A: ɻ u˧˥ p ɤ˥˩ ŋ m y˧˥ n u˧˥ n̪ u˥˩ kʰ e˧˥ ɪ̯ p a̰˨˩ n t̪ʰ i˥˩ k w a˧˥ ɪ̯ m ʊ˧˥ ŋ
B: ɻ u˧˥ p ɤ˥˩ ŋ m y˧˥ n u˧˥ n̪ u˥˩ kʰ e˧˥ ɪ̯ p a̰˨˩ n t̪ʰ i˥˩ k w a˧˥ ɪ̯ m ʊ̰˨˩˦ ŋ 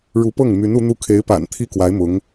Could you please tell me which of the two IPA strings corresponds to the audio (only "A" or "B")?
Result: A